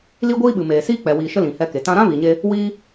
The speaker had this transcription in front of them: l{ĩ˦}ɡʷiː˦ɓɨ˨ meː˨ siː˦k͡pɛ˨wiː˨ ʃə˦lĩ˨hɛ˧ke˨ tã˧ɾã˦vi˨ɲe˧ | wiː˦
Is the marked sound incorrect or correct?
incorrect: i˦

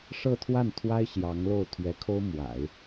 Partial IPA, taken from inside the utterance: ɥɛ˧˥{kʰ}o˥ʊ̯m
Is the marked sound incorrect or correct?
correct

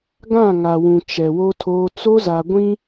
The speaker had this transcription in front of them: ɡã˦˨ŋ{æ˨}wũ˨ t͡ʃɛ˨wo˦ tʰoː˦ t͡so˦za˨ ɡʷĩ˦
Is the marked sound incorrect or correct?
incorrect: a˨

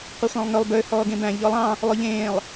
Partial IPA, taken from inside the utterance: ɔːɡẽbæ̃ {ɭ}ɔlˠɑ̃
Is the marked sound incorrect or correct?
incorrect: ʎ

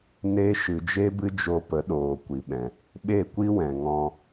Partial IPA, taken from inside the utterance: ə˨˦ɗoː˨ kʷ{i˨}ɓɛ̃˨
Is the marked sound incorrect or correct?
correct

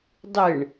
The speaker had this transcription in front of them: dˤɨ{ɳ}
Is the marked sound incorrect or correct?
correct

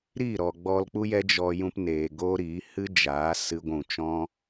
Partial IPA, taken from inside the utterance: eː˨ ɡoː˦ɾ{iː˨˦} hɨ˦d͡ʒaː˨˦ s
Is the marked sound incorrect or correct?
correct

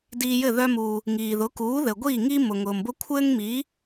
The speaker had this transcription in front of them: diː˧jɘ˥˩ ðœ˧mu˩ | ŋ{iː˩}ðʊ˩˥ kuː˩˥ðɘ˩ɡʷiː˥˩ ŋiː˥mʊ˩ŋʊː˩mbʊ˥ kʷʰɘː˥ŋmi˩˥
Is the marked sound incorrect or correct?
correct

